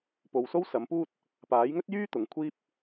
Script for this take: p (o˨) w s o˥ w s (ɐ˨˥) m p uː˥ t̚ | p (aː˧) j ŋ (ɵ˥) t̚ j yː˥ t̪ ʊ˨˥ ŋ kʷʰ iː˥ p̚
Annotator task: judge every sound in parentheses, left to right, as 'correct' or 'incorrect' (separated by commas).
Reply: correct, correct, incorrect, correct